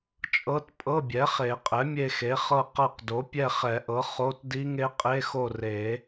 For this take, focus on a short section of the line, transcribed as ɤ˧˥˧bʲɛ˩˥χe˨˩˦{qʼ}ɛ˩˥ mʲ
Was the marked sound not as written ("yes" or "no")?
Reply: no